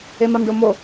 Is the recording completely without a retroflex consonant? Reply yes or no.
no